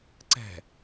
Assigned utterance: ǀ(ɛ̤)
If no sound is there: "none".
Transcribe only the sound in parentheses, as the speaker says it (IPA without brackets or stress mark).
ɛ̤